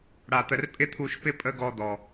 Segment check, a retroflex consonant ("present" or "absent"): present